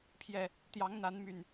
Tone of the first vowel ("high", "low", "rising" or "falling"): low